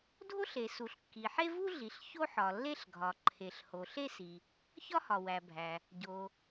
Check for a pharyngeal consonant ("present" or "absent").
present